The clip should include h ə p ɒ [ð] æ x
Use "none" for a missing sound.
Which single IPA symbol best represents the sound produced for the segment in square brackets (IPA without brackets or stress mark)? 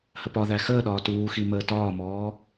ð